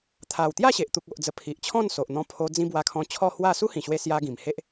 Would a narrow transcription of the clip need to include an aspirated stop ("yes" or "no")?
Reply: yes